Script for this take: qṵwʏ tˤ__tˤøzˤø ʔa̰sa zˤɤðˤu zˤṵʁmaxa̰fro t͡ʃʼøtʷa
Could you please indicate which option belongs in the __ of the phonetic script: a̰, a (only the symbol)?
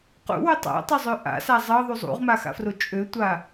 a̰